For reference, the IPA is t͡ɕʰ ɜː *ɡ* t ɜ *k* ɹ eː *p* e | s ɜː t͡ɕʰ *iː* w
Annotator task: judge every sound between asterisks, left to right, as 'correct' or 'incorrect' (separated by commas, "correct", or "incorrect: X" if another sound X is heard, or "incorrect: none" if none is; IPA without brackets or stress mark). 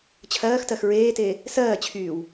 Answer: incorrect: x, incorrect: x, incorrect: t, incorrect: yː